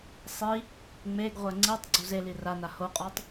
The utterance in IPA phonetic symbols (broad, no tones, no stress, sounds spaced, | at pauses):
sˤ i | ŋ͡m e ɡ ʁʷ ɛ ŋ͡ǀ i tˤ ɡ͡ǀ u z e l i r a n a h o qʼ ɔ tˤ